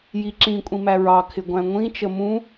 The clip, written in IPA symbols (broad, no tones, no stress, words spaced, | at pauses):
jiǁĩ kʷʼĩmæɹɑ kʰɪɡʷæ̃ŋʷĩ t͡ʃəmũ